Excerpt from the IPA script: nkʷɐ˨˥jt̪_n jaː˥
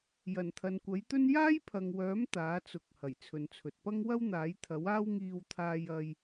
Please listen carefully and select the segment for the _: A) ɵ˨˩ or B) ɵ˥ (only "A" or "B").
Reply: B